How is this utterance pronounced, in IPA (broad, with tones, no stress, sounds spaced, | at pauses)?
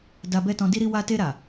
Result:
d a˧ b ɛ˦ t ɔ̃˧ d i˦ ɾ i˦ w a˧ t e˧ ɾ a˨